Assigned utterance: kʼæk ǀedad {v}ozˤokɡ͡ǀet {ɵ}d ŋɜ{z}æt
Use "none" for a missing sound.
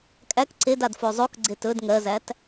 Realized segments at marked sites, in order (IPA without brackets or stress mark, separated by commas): f, ɵ, z